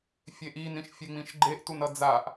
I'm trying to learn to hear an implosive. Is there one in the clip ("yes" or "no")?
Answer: no